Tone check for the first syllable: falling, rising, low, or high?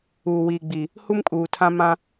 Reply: low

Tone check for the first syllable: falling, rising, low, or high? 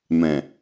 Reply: low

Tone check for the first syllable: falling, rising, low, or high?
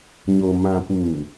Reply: low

